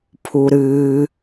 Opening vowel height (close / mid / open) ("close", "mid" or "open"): close